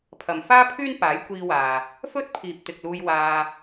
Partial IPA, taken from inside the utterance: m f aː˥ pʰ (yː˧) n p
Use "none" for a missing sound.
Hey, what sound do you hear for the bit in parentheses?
yː˥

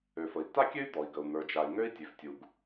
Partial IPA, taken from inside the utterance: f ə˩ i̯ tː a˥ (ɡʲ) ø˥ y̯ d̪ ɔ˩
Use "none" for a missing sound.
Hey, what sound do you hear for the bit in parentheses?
kʲ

